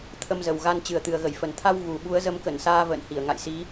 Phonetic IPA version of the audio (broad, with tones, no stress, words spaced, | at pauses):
t̪ʰə˧mzə˨˩wɣa˧n t͡ɕɨ˨˩ə̯t̪ɨ˨˩ə̯ɣə˧˩jfə˨˩n t̪ʰa˧w ɣu˨˩ ɓu˨˦ə̯zə˨˦mkə˧˩nsaː˧ və̰ː˧˨nhi˧˩ə̯ ŋa̰˧˨jsi˨˦